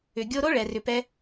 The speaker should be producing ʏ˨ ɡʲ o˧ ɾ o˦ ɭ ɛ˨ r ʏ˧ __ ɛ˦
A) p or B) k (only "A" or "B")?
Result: A